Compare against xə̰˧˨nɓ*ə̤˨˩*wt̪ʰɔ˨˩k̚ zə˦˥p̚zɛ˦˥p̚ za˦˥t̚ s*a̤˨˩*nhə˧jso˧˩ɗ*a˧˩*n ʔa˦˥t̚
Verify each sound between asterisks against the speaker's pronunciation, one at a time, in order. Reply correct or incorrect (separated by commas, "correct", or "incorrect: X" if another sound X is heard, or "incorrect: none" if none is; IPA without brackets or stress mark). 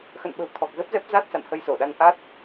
correct, incorrect: a̰˧˨, incorrect: a˧